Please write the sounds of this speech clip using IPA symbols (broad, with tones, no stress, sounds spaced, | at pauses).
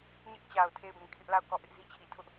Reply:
ɲ ɪ˦ ʔ t͡ɕ a˨ ʊ̯ tʰ e˦˨ ɪ̯ b ĩ˨ kʰ ɪ˦ ʔ l a˦˨ ʊ̯ k ɔ˦˨ ʔ ɪ˦ ʔ z i˦ t͡ɕʰ i˨ tʰ ʊ˦ ʔ